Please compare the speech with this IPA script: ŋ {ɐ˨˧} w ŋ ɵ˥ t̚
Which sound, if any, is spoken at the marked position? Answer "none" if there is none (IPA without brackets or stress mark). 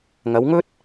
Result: ɐ˨˧